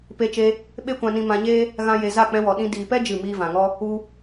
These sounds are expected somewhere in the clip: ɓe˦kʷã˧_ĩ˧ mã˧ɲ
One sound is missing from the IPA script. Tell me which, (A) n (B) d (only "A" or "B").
A